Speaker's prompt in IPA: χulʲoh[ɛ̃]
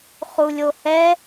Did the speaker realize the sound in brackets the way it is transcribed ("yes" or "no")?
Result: no